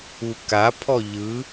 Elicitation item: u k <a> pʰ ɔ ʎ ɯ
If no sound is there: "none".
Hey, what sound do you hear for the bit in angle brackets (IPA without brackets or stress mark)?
a